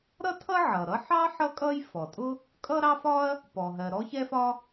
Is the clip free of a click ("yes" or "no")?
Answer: yes